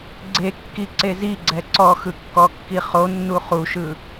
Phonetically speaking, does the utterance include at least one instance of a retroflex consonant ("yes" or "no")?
no